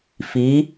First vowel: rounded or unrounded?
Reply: unrounded